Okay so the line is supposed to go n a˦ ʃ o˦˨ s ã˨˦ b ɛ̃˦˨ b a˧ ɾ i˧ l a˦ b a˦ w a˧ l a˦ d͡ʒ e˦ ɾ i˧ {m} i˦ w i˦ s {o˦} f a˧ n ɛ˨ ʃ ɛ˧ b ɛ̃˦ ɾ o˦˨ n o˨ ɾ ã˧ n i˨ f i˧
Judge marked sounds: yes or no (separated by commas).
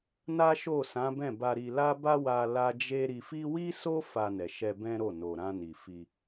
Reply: no, yes